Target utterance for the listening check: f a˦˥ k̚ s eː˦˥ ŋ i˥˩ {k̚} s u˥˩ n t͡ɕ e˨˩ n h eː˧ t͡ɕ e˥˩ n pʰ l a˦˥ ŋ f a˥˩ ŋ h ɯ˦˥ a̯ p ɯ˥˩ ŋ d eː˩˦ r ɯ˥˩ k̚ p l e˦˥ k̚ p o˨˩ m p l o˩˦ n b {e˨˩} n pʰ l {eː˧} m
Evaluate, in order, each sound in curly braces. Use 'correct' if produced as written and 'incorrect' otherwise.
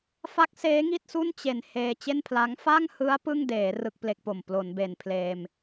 incorrect, correct, correct

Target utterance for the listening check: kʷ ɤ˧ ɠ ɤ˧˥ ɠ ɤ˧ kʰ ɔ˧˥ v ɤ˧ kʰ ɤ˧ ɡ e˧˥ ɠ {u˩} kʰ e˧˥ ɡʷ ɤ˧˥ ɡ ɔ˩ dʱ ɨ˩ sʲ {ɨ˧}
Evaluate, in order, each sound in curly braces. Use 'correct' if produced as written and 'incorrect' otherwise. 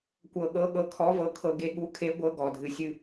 incorrect, correct

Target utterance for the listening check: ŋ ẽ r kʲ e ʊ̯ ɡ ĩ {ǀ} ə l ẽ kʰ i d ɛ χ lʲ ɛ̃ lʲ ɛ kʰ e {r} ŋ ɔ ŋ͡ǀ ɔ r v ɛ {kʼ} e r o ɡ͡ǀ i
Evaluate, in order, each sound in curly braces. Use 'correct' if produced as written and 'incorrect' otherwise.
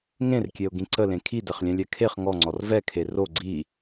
correct, incorrect, incorrect

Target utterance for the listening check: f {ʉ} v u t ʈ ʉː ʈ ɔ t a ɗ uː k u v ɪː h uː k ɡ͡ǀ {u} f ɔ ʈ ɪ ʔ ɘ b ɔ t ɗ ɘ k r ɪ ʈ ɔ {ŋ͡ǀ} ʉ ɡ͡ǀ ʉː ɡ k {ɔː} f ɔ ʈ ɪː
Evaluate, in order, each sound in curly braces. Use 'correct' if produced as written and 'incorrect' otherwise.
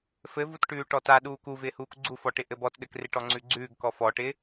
incorrect, correct, correct, incorrect

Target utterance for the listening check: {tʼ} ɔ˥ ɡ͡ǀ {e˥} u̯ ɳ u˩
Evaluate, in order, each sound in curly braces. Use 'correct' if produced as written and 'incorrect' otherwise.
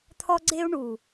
incorrect, correct

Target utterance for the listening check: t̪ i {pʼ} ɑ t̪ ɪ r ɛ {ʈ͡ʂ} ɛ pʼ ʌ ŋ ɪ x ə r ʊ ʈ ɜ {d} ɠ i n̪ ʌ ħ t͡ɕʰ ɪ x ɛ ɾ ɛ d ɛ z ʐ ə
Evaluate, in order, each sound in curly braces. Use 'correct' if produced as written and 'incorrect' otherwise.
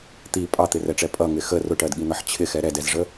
correct, correct, correct

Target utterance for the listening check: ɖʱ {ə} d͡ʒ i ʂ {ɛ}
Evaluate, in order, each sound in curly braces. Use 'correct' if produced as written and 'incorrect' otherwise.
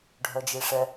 incorrect, correct

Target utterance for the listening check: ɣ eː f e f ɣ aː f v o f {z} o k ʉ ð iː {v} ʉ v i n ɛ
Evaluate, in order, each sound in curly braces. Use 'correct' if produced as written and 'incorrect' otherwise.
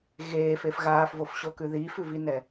incorrect, incorrect

